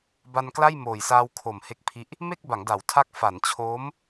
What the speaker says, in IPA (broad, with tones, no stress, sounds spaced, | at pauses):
b a˧ n k l a˥˩ j m oː˨˩ j s aː˧ w kʰ o˨˩ m h e˦˥ k̚ pʰ i˦˥ ʔ | m e˥˩ k̚ b a˩˦ ŋ d a˩˦ w tʰ a˦˥ k̚ f a˩˦ n t͡ɕʰ oː˦˥ m